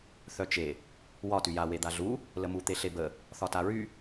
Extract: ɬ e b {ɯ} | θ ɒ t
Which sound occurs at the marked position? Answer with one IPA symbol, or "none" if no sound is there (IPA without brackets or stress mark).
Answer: ə